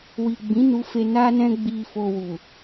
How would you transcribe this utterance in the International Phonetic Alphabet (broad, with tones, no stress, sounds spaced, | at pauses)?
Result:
w i˨ ɡ͡b ĩ˨˦ n u˧ f e˧ n a˦ n ɛ̃˦ ɡ͡b i˧ f o˧ w u˨